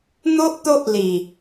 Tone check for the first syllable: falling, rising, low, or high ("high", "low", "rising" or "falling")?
high